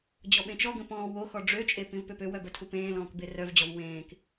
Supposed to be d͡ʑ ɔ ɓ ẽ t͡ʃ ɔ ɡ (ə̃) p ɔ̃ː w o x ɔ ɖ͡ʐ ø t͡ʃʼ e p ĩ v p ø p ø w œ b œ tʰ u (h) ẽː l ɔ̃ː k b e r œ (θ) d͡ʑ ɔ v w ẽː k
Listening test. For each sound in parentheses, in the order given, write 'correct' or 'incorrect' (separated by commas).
correct, incorrect, incorrect